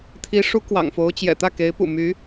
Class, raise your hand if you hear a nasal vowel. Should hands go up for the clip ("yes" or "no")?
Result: no